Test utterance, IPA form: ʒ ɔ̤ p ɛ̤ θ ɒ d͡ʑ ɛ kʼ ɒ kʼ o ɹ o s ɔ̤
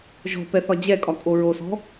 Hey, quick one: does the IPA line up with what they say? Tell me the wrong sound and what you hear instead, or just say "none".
ɛ̤ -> ɛ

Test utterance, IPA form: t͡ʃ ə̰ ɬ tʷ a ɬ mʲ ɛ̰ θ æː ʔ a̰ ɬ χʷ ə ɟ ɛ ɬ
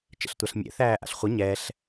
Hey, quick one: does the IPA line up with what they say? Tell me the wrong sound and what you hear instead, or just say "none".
ɟ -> ɲ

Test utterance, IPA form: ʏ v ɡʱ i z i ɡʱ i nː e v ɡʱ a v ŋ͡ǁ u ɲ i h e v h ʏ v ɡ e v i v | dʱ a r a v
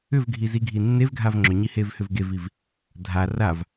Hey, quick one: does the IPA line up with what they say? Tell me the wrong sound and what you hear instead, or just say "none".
u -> ʏ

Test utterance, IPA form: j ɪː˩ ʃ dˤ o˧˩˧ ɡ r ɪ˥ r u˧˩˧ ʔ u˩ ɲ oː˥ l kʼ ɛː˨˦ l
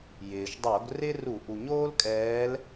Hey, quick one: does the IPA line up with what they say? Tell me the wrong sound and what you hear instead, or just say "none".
none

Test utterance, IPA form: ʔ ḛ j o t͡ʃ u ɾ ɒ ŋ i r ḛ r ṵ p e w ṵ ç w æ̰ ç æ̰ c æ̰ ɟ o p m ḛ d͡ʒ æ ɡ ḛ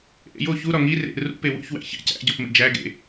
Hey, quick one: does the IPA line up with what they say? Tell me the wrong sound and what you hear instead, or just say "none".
t͡ʃ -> ç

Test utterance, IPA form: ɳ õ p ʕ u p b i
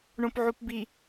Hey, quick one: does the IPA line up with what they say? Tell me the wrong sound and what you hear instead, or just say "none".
none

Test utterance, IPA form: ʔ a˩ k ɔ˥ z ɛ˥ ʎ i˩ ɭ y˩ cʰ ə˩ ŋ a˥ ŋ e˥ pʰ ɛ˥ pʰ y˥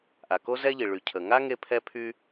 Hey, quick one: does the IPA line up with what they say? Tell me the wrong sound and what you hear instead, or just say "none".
ɔ˥ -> o˥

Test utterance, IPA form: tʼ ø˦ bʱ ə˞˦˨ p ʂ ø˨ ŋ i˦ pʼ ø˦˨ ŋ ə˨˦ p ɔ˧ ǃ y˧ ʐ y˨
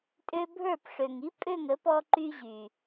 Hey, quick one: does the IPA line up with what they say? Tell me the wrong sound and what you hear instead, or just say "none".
ʐ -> ʑ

